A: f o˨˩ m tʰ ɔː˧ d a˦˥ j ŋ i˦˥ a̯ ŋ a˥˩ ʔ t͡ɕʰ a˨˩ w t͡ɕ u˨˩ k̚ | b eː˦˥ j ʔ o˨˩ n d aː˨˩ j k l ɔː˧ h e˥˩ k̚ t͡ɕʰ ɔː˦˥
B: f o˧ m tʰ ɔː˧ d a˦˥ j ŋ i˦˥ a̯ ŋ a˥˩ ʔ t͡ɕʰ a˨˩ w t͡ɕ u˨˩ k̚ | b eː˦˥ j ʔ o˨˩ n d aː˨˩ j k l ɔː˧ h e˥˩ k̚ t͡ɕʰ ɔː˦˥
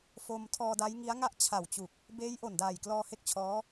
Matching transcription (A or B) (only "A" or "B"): B